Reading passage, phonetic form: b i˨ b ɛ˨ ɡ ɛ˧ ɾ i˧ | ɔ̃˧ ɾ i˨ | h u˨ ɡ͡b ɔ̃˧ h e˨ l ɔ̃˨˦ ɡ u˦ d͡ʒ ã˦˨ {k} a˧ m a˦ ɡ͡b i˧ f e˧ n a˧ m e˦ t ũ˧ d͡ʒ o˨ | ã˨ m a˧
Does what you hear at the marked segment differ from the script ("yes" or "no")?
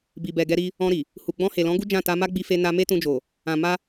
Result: yes